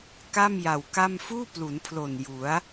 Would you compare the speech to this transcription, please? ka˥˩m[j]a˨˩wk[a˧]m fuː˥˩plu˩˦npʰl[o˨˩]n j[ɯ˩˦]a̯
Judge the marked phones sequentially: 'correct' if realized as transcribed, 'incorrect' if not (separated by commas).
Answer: correct, incorrect, correct, incorrect